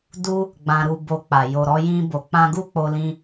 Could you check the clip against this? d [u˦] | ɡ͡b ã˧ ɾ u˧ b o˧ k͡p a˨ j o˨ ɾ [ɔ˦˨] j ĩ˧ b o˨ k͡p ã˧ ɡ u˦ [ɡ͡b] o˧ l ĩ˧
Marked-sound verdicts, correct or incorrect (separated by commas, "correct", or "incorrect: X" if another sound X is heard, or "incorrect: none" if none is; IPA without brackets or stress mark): correct, incorrect: ɔ˧, incorrect: k͡p